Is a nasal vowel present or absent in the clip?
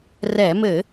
absent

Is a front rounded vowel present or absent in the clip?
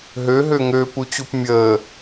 present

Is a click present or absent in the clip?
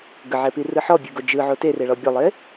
absent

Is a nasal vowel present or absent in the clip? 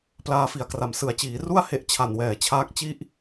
absent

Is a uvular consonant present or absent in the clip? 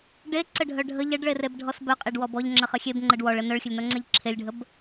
present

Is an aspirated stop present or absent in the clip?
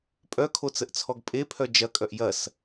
present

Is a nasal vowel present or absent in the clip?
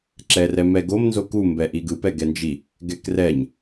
absent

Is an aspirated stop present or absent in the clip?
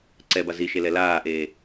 absent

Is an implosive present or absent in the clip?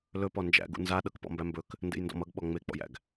present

